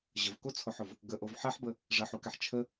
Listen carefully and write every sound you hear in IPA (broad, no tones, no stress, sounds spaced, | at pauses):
ʑ ə v k o t͡sʰ o ħ ʊ v | ɡ ə ʔ o v ħ ɛ ħ b ə | ʐ ə ħ u k ɛ ħ t͡ʃʰ ə